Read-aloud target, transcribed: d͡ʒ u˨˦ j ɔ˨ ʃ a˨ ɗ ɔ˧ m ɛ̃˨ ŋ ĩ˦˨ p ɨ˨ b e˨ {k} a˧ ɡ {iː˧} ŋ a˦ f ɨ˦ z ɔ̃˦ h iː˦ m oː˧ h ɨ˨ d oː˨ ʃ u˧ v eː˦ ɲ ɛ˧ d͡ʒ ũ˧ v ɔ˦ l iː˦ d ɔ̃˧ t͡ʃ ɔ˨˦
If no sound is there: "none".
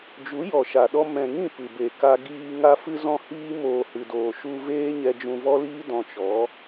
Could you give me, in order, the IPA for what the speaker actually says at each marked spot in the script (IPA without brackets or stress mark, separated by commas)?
k, iː˧